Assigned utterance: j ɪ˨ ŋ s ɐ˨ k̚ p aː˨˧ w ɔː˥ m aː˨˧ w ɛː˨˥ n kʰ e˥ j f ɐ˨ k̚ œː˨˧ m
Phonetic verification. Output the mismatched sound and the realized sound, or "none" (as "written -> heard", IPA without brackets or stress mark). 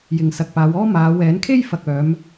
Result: none